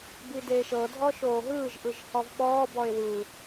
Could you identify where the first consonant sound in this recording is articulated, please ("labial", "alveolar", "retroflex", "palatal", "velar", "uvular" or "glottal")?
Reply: labial